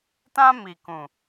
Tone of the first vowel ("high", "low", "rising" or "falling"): high